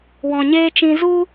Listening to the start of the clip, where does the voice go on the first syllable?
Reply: low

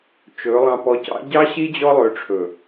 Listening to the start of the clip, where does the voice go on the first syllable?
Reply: rising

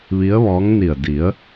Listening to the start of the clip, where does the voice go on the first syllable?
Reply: rising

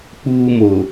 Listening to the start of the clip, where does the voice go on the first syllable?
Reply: high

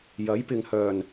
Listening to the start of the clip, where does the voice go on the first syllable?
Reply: rising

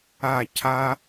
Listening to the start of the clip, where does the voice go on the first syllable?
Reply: falling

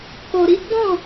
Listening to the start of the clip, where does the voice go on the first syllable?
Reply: low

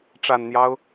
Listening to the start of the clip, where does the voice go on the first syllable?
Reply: low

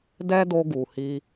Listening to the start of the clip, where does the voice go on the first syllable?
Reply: high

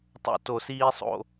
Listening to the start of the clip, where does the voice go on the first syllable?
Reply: low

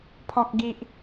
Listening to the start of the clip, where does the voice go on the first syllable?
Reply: low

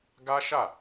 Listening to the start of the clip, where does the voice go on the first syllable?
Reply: high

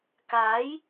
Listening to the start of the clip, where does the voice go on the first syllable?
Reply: rising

